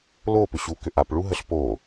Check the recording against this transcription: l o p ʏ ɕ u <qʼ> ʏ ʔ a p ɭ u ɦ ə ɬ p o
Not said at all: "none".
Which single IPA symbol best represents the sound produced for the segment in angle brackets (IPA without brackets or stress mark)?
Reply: k